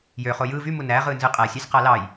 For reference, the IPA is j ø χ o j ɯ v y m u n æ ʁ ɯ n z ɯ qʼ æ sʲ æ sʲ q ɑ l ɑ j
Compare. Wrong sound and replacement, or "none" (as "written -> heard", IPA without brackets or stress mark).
none